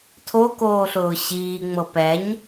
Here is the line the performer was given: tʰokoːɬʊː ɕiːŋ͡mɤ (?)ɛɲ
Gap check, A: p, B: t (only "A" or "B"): A